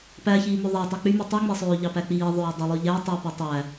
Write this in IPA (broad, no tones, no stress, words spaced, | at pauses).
pæçiːmø ðˤæ tˤæk͡pymy tˤɯŋ͡mesˤøː ʎɑpæk͡piːðˤøː dˤilˠyʎæ tˤy pitˤæ